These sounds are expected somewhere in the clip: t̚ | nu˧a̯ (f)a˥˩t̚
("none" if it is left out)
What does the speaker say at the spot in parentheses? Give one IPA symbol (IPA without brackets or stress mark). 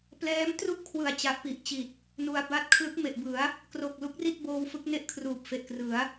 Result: b